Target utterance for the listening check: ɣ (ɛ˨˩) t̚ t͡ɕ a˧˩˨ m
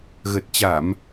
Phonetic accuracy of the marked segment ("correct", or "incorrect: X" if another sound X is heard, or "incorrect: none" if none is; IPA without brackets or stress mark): incorrect: ə˨˩